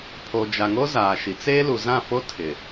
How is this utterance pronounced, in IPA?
pʰ o˨ d͡ʒ a˨ ŋ o˦ z aː˨ ʃ i˨ t͡s eː˦ l u˨ z ã˦˨ f o˦ tʰ ɪ˨

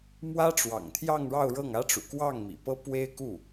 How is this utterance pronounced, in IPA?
m w ä˥ ʈ͡ʂ w ɑ̰˨˩ ŋ t̪ʰ j ɑ˥˧ ŋ ɻ ɑ˥˧ ʊ̯ ɻ ɤ˥˩ ŋ ä˥ ʈ͡ʂ ṵ˨˩ k w ɑ˥˩ ŋ m ḭ˨˩ p ɤ˥ p w e˥ ɪ̯ k u˥˩

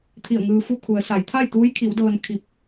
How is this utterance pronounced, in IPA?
t̪ʰ i˧˩ ə̯ ŋ ɯː˧ f u˥˨ kʰ u˩˧ ə̯ s a˩˧ j t̪ʰ a˥˨ j t̪ uː˧˥ j kʰ i˩˧ w d ɤː˧ n kʰ i˧˩ p̚

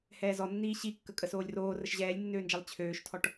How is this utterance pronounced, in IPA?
h ɛː z ɔ nː iː ɕ i kː ə kʼ ə s oː lʲ r oː r ə ʃ ʑ ɛː lʲ nː øː n d͡ʒ ɛ lˠ t͡ɕʰ øː ʃ tʰ ɔ ʈ

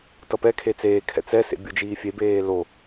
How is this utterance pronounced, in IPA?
t ʌ p ɛ kʰ e t͡s eː kʰ ɛ̰ t͡s ɛ s ḛ bʲ u d͡ʒ iː fʲ e b eː l o

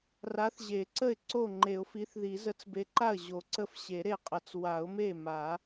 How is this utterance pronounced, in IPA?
r a˨˥ θ ʑ e˨˩˦ ǀ ə˥˩ ɪ̯ ǀ o˥˩ ŋ͡ǃ e˨˩˦ ʊ̯ f i˨˥ θ ð i˨˩˦ z ə˨˥ t͡s b e˨˥ ǃ a˥˩ ə̯ ʑ o˨˩˦ ǀ ə˥˩ f ɕ e˨˩˦ ɾ e˥˩ qʼ ə˨˩˦ t͡s w a˨˩˦ ʊ̯ m e˥˩ m a˨˩˦

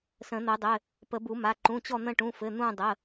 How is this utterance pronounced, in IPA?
s ə̃˨˩˦ n̪ ə˨˩˦ dˤ ɘ˩˧˩ | p ə˨˩˦ b u˨˩˦ m a˩˧˩ ǃ ũ˩˧˩ t͡ɕ ɔ˦˨ n̪ ə̃˦˨ ʈ ũ˩˧˩ f ɘ˩˧˩ n̪ ũ˦˨ dˤ ə˩˧˩

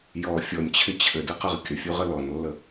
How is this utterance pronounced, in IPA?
j ɔ fʲ ɔ nʲ t͡ɕʰ ɪ t͡ɕʰ ɘ d ɘ q ə ʁ kʲ ə fʲ u ʁ ə l ɔ n lː ə

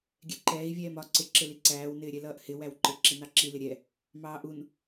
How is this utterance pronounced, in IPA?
ɡʲ ɛ ǃ ɛː i̯ vʲ ɛː m ɒ ǀ ɪ ǁ ɪ l i ǀ æː w n ɪː ɾʲ ɛ l ʌː ʔ h ɪ w æ w ǃ ɪ ǁ i n ɑ ǁ i l ɪ ɾʲ ɛ | m ɑː ʔ u n

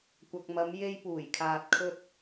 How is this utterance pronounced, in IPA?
kʷ ɐ˨ k̚ m ɐ˨˧ m j e˧ j p uː˨˩ j kʰ aː˨ t̚ kʰ ɵ˧ t̚

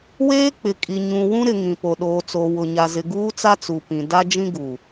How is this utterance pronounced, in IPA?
w eː˦ k͡p ɪ˨ kʼ i˨ ɲ ũ˨ w ũ˦ ɾ ɪ˨ ŋ ĩ˨ p o˨ ɗ oː˨ t͡s o˨ w ʊ˨ ɲ a˨ z ɪ˨ ɡ uː˦ t͡s a˦ t͡s u˨ p ĩ˨ d a˦ d͡ʒ ĩ˦ ɡ u˨

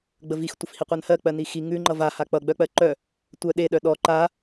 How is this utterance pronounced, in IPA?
ɡ͡b ə v i x tʷ ə f h i qʷ ɜ n h ɜ k͡p ɜ n i x i ŋ ʉ ŋ͡ǃ ʌ v a h a k͡p ʌ ɡ͡b œ k͡p ɜ ǃ œ | tʷ œ ɗ e ɗ œ ɗ ɔ ǃ a

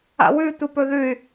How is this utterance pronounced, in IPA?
a̰ w ʉ tʷ ɨ p ɵ ð ʉ y̯

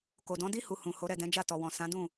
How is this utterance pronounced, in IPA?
k o˨ d ɔ̃˨˦ d i˦ h u˧ h ũ˨ h o˨˦ ɾ ɛ˦˨ d ɛ̃˨˦ d͡ʒ a˦˨ t ɔ˨ w ɔ̃˨ s ã˨˦ d ũ˦˨

